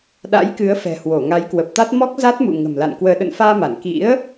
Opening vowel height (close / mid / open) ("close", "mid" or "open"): open